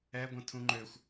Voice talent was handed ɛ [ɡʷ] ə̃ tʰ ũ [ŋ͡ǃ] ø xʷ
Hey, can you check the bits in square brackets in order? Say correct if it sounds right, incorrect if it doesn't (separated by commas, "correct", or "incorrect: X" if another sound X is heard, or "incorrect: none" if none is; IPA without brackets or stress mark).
correct, correct